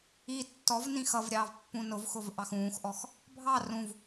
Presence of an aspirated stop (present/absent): absent